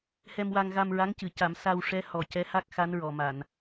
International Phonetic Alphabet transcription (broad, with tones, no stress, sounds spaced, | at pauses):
h ɛ˧ m w a˧ ŋ ɣ a˧ m ɹ a˧˥ ŋ c ɨ˨˩˨ c a˨˩˦ m s a˧ w ʂ ɛ˧˥ h ɔ˨˩ c ɛ˧˥ h a˦˥ k̚ x a˧˥ n ɹ ɔ˨˩˨ m a˨˩˨ n